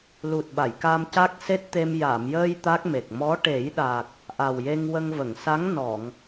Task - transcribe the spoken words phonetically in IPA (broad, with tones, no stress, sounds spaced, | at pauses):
l u˨˩ t̚ ɓ a˨˩˨ j k a˧ m c a˦˥ k̚ s e˦˥ t̚ t̪ e˧ m j a˨˩˨ m j əː˧ j t̪ a˦˥ k̚ m e˨˩ k̚ m ɔ˧˥ ʈ e˨˩˦ j ɗ a˨˩ k̚ | ʔ a˨˩ w j e˧ ŋ w ə˧ ŋ v ə˨˩˨ ŋ s a˧˥ ŋ n ɔ˨˩˨ ŋ